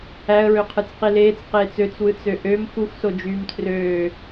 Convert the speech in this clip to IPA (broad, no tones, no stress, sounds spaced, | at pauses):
æ ə̯ ɹ ø qʰ ɯ t͡s q i l eː t͡s q eː t͡s ø t͡s w ɯ t͡s ø ʔ ø m x u x s o d͡ʒ yː m tʰ r øː